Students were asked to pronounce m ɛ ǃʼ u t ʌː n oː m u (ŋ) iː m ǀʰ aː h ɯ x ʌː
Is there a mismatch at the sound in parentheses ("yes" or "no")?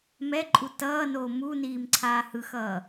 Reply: yes